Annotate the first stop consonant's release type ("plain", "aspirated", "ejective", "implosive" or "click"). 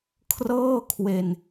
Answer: aspirated